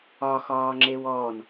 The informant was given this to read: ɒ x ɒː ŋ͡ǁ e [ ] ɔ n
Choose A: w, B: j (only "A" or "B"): A